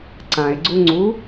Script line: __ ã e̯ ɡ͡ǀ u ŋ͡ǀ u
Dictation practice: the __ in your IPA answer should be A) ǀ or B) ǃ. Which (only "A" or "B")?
A